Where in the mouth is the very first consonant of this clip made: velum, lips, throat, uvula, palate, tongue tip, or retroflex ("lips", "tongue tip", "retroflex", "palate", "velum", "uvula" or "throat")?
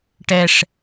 retroflex